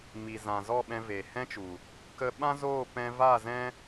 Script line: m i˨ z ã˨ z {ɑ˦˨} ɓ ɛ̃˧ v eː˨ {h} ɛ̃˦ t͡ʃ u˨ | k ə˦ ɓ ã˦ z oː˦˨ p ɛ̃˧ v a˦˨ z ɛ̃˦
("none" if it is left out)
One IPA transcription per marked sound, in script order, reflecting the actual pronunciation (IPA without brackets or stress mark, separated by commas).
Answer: ɔ˦˨, h